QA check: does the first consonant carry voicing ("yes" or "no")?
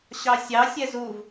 no